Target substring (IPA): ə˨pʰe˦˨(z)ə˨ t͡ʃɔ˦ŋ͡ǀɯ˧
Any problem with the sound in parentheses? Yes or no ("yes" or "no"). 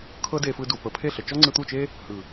yes